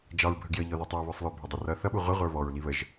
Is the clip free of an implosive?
no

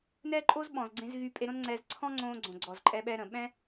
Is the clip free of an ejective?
no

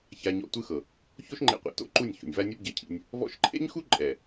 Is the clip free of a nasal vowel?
yes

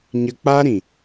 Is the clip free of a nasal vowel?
no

